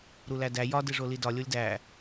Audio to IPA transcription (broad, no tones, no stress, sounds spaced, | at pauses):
ɾ u l æ d æ j ɒ d e ʐ o l i d ɒ lʲ o lʲ d æ